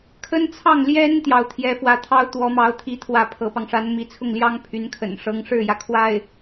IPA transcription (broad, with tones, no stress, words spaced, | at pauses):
kʰə˥nt͡sʰɑ˥˩ŋljɛ˥n t̪jɑ˥˩ʊ̯t̪ʰjɛ˥fwä˥ t̪ʰɑ˥ʊ̯ t̪wɔ˧˥mɑ˧˥ʊ̯t̪ʰi˧˥ t̪ʰwä˥˩pʰɤ˧˥pɑ˧ŋ ʂa˧˥nmi˧˥t͡sʰʊ˥˩ŋljɑ˥ŋ pʰy˧˥nkʰə̰˨˩nʂɤ˥ŋ ʂɻ̩˥˩jä˩ kʰwa˥˩ɪ̯